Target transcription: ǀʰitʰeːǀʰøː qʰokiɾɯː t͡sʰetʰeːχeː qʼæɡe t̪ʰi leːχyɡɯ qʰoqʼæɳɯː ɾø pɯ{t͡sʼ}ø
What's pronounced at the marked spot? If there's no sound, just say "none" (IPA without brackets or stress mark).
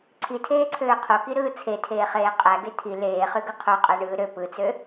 t͡s